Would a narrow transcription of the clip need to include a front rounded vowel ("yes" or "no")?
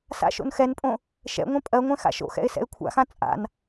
no